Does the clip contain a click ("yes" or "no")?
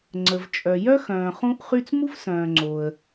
yes